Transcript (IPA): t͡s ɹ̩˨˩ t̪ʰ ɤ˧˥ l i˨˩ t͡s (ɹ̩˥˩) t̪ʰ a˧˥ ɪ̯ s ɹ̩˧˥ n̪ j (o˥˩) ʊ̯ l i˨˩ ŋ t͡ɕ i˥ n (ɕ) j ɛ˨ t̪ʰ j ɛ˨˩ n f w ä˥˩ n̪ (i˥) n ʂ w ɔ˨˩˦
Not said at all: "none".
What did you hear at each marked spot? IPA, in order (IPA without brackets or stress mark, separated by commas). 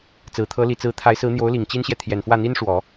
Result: ɹ̩˧˥, o˧˥, ɕ, i˥